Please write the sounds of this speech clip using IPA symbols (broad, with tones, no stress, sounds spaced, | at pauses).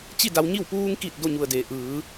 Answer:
t͡ɕ i˥˨ d a˧ w ɲ i˥˨ w p uː˧ ŋ k i˧˩ t̚ d o˥˨ ɲ u˧˩ ə̯ d eː˩ ʔ ɯː˩˧